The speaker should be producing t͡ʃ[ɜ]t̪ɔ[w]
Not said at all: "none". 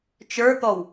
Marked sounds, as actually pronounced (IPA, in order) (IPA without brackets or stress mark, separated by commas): ə˞, w